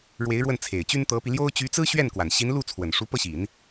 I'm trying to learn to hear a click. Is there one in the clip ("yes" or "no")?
no